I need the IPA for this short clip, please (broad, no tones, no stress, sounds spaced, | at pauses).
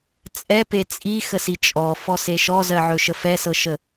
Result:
t͡sʼ ɛ p e t͡sʼ i x ə s i t͡ʃʼ ɔ f ɔ s e ʃ ɔ z ɜ ʕ ɵ ʃ ə f ɛ s ɤ ʃ ə